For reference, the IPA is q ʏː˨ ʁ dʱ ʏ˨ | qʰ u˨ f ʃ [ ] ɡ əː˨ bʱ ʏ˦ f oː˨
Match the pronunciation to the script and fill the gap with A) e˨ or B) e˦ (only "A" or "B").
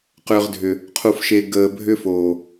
A